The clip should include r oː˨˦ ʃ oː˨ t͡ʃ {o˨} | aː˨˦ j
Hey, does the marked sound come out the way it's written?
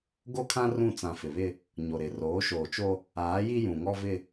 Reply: no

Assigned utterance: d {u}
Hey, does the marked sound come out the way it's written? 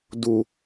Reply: yes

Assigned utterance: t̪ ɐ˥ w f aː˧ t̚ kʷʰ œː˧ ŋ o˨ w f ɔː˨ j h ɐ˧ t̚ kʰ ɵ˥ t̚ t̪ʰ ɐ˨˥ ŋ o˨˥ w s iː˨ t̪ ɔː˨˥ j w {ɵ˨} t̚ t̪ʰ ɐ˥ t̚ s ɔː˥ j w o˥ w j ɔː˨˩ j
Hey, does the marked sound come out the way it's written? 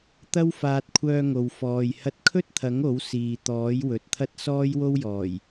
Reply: yes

